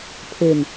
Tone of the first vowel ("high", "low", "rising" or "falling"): falling